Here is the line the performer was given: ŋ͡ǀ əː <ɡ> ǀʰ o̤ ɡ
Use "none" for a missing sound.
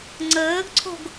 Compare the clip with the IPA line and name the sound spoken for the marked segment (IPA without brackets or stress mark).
ɡ